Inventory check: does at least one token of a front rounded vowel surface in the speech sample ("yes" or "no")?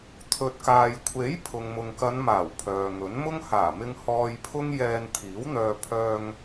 yes